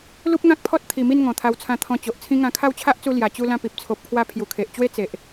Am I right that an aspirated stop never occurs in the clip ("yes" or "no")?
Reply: no